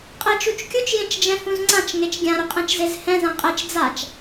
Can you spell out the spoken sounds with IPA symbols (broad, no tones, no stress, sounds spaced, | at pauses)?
qʼ ɛ t͡ʃ u t͡ʃ kʲ u t͡ʃ j ẽ t͡ʃ d͡ʒ ɛ̃ h ũ z ŋ͡ǀ ã t͡ʃ ŋ e t͡ʃ ɡʲ ã ɾ ʊ qʼ ɛ̃ t͡ʃ z e z h ɛ̃ z ã qʼ ɛ t͡ʃ d͡z a t͡ʃ